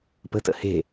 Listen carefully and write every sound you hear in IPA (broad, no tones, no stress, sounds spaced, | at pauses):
p ə̤ t ə̰ h e̤